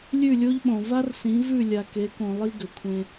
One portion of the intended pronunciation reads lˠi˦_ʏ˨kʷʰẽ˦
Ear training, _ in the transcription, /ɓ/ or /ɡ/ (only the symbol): ɡ